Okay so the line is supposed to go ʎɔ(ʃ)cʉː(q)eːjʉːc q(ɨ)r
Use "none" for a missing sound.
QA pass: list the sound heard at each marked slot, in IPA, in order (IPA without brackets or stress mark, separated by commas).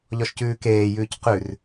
ʃ, k, ʉ